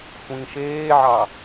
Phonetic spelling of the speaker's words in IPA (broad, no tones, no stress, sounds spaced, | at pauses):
sʷ ĩ ʃ eː ʕ ɑ